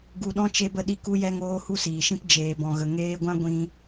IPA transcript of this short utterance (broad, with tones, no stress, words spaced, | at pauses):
ɡu˧ɗɔ̃˦ t͡ʃe˧bə˧ɗi˧ ku˦jɛ˦ŋoː˦ hu˦siː˨ʃĩ˦p d͡ʒeː˨bɔ̃˨ɣə˨ ŋeː˧ɡʷã˦ ɡʷĩ˧